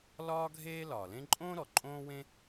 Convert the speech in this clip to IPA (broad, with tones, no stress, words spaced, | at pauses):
lɒː˥ ɡʱeː˥ lɒː˩lẽ˥ ǃʼõː˥ɾɔ˩ ǃʼõː˥wẽ˥